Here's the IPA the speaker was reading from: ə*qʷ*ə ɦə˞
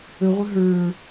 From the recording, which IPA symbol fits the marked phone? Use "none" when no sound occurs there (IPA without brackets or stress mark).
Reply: ʁʷ